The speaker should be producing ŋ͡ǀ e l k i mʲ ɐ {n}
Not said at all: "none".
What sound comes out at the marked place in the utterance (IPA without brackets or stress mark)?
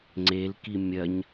ɲ